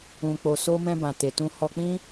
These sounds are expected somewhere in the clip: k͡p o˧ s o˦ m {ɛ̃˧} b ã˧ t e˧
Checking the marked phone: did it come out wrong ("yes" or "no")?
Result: yes